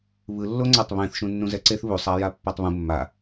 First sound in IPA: β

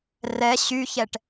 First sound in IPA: r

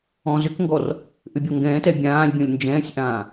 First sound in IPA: ɔ̃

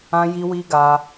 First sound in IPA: ã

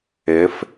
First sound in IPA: ɪ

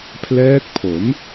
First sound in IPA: pʰ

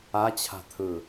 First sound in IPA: a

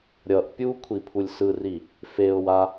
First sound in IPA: ɾʲ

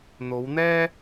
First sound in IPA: n̪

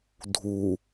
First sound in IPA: dʱ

